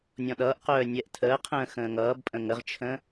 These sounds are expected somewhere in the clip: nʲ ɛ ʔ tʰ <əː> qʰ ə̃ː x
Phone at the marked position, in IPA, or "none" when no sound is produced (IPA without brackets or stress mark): əː